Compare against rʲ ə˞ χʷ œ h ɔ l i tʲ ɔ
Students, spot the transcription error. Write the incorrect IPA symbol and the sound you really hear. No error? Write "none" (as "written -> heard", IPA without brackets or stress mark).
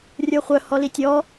none